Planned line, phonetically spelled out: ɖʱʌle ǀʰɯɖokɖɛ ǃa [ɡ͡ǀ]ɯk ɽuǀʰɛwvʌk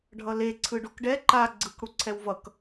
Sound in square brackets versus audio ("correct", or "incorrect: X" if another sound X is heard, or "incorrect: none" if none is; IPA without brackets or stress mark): correct